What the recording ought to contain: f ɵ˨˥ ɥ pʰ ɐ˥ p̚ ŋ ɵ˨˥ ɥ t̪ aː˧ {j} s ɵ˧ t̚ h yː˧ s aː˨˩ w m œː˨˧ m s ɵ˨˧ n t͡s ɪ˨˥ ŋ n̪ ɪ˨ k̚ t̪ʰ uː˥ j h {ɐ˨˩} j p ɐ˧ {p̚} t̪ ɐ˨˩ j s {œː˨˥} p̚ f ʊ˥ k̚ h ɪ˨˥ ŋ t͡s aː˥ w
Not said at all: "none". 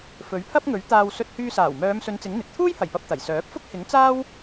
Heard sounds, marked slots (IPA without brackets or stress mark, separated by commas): w, ɐ˨˩, p̚, œː˨˥